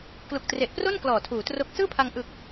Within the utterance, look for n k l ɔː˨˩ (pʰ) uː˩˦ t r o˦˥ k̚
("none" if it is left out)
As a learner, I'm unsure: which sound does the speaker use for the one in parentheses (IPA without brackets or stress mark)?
tʰ